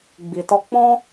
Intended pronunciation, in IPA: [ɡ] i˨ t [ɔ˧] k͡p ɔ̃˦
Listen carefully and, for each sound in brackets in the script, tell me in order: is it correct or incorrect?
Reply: incorrect: ɡ͡b, correct

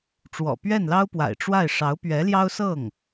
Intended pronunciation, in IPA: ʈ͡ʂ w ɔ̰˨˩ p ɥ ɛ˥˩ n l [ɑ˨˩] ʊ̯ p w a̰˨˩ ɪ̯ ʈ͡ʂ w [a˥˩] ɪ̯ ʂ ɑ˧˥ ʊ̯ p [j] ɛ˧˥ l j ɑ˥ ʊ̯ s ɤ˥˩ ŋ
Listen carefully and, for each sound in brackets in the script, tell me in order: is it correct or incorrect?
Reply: incorrect: ɑ˥, correct, incorrect: ɥ

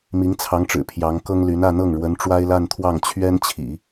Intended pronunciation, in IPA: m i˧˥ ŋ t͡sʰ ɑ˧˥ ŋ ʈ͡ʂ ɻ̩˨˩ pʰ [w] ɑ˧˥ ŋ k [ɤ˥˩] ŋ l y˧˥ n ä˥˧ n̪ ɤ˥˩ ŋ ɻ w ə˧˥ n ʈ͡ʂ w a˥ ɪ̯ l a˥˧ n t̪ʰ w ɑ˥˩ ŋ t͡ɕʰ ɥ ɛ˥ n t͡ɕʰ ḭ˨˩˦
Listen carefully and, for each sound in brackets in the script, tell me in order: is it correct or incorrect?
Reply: incorrect: j, incorrect: ɤ˥

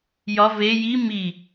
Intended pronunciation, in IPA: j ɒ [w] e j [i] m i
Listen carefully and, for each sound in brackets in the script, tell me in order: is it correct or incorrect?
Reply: incorrect: v, correct

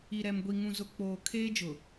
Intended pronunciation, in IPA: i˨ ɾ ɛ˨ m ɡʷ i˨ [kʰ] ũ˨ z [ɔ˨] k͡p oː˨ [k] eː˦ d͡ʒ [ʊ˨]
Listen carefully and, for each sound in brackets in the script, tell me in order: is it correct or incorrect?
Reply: incorrect: ŋ, incorrect: ʊ˨, incorrect: kʰ, correct

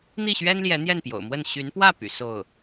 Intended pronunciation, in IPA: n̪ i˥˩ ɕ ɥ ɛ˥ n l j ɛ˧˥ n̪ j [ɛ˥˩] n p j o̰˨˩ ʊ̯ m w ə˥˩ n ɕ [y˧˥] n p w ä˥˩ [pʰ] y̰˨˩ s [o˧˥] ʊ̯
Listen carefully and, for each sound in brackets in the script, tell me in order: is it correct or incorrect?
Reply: correct, correct, incorrect: p, incorrect: o˥˩

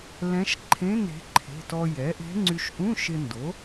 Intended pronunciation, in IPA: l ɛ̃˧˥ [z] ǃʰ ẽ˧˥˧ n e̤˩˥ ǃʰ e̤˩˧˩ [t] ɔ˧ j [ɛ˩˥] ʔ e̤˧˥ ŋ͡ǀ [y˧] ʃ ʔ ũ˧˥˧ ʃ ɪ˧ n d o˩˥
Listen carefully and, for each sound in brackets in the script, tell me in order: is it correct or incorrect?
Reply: incorrect: ʃ, correct, correct, correct

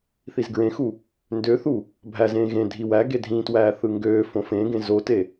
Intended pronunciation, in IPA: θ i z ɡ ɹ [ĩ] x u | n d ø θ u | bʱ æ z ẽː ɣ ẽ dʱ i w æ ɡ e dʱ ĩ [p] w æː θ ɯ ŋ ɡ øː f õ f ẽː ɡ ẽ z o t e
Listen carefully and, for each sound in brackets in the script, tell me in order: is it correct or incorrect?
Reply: incorrect: ẽ, incorrect: t

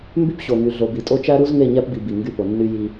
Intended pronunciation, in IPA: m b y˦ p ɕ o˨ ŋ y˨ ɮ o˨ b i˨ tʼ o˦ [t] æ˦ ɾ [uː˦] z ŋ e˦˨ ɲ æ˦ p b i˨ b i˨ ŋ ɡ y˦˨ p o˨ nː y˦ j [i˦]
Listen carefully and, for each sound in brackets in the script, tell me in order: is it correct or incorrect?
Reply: incorrect: t͡ʃ, incorrect: u˦, correct

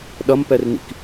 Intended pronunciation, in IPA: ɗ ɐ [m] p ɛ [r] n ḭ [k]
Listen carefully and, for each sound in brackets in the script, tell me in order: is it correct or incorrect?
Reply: correct, correct, correct

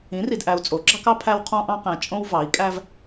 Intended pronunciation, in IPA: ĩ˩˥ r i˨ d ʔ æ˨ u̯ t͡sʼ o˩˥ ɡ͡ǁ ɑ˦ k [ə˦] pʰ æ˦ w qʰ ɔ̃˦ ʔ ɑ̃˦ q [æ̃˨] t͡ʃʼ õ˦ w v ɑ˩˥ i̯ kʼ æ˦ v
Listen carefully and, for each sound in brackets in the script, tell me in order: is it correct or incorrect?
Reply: incorrect: ɑ˦, correct

